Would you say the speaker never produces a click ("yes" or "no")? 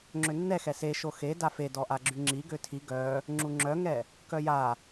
no